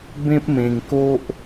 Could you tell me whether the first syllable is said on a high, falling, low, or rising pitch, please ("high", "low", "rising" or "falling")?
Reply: high